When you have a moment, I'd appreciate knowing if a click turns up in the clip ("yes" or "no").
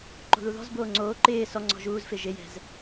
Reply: yes